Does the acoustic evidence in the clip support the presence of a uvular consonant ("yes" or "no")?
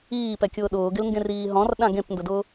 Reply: no